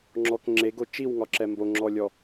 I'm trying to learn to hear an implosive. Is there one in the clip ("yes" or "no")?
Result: no